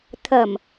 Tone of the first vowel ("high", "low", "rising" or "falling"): low